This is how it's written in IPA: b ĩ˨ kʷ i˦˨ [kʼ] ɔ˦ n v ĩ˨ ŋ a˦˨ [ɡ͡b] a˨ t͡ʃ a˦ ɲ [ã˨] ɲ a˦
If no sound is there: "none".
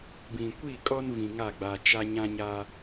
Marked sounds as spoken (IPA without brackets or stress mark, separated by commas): kʼ, ɡ͡b, ã˦